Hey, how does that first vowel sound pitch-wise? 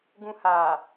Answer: low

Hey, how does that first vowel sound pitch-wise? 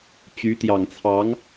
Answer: rising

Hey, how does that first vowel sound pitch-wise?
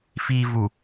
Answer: low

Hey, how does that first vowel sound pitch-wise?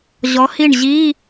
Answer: rising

